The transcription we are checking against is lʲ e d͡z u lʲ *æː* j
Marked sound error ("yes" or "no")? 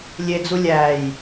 no